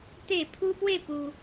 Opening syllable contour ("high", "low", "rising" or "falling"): falling